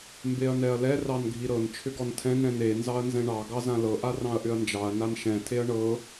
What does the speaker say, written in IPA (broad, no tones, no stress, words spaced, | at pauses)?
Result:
mbeɐ̯nɛɐ̯lɛ rɑnɡʱiɾɤn t͡ʃʰʏɡɔntʰɛ̃n ɾɛ̃ne nzɑɐ̯nzɛ̃ɳɑ ɡɑzãlɤ ʔarɑ̃ɐ̯ʔʏɐ̯nd͡ʒɑɐ̯ nanʃɛ̃ tʰeɐ̯ɳɤ